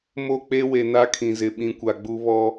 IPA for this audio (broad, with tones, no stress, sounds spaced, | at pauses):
m o˦˨ k͡p e˦ w e˨ n a˦ kʰ ĩ˨ z ɪ˨ ɓ ĩ˨˦ kʷ a˨ ɡ͡b u˦ β ɔ˦